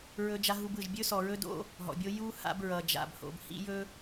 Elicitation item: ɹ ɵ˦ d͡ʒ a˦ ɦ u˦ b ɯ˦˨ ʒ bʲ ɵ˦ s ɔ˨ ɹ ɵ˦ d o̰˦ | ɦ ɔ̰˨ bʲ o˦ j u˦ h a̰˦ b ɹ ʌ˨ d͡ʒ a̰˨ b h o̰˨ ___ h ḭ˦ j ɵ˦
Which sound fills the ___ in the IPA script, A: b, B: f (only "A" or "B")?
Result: A